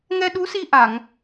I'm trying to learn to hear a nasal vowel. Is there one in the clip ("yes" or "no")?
no